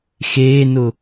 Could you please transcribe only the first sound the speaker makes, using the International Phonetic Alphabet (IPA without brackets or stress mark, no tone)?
x